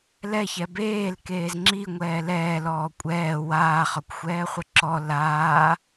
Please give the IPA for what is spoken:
lɛçɛ beːl keːzŋ͡ǁiŋʷɛː lɛːlɔː kʷʼɛː waːχɒkʷxʷɛːχʷə ǁɔ laː

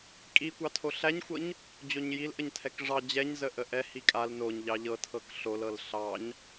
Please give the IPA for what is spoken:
kʼi kʷɑtʰoɬæɲxʷɤɲ | d͡ʑoɲjil ʔəɲtʰɛkʐɑ d͡ʑɛɲzə ʔəʔɛ hikʼal noɲ ʎɑʎɤ tʰɤkɬolɤl ɬɑɲ

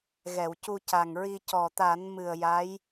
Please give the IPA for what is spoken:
ɣɛ˨˩˨wcu˧ca˨˩ŋɹi˧ cɔ˨˩t̪a˨˩˦n mɨ˨˩ə̯ja˧˥j

